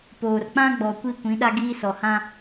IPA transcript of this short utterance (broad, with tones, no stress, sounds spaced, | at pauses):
p oː˨ r k͡p ã˦ ɡ͡b ɔ˨ kʷ i˦˨ kʷ ĩ˨˦ ɗ a˦ ɡ iː˦ s ɔ˨ h ã˦